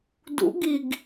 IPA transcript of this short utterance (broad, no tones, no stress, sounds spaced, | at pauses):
d ṵ ɡ i ɡ